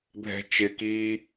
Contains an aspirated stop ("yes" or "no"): no